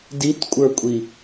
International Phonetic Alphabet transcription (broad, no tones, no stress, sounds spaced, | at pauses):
d i t kʷʼ ə˞ kʷʼ i